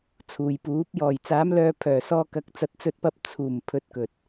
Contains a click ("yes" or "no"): no